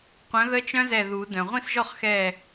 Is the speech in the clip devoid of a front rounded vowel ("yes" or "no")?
no